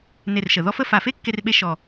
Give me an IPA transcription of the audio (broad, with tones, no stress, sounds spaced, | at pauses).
n e˥˧ r ʃ ə˧˩˧ ð ɔ˥ f ə˥˧ f a˧˩˧ f e˥ kː e˥ r ɓ e˥ ʃ ɔ˧˩